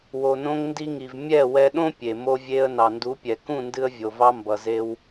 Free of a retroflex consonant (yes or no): yes